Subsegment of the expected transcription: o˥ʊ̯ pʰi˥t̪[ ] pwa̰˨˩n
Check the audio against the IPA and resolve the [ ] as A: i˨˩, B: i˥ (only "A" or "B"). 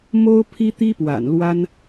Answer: B